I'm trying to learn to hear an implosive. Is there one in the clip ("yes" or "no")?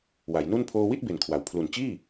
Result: no